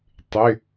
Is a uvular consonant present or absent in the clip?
absent